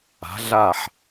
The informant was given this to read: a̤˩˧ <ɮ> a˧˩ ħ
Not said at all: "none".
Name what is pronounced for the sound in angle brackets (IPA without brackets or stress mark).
ɮ